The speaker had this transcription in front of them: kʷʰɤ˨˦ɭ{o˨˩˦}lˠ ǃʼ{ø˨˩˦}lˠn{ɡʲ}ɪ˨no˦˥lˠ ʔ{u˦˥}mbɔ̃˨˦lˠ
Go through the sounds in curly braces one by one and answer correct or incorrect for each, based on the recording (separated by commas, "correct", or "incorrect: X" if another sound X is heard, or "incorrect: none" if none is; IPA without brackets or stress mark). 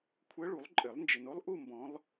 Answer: incorrect: u˨˩˦, incorrect: ɘ˨˩˦, incorrect: d͡ʒ, incorrect: u˥˧